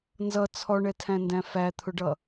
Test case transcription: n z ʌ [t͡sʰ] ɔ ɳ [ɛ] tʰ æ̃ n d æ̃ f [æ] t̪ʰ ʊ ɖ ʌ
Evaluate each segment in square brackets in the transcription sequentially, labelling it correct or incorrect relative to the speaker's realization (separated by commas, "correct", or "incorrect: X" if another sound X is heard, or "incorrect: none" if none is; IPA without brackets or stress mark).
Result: correct, correct, correct